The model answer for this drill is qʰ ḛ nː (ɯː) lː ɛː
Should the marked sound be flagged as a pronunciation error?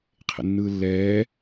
no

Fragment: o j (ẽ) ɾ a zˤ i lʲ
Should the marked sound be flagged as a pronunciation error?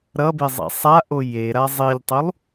yes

